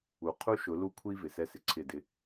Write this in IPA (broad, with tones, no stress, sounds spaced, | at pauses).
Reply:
u˨ qʰ u˦ ʃ ʊ˨˦ l u˦ kʷʰ i˦ v ɪ˨ s ɛ˦ s ɪ˨ ǀʰ ɪ˦˨ d ɪ˦